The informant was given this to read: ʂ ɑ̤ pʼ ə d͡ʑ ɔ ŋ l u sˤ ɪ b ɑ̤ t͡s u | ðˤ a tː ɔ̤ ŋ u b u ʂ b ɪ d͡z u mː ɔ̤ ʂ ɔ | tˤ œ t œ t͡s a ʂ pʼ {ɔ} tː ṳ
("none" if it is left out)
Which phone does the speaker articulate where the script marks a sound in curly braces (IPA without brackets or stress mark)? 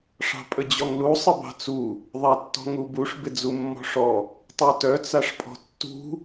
ɔ̤